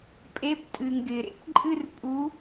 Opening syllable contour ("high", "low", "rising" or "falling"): rising